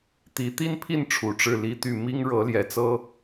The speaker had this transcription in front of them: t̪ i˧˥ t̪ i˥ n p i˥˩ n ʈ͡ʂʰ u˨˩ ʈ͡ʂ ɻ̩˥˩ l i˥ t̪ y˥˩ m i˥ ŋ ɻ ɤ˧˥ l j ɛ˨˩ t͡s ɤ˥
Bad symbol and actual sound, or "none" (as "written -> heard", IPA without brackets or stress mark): p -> pʰ